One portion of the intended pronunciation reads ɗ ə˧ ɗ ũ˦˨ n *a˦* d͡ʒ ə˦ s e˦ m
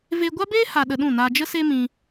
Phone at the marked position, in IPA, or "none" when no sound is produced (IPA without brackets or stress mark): a˧